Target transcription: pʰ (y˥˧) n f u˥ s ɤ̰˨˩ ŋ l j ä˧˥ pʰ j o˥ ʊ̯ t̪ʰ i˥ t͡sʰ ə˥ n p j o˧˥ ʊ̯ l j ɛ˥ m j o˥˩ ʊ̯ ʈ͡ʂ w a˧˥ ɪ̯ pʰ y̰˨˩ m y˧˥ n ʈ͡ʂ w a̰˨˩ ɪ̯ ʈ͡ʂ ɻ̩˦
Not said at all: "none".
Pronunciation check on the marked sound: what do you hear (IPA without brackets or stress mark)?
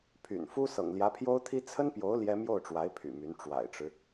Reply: y̰˨˩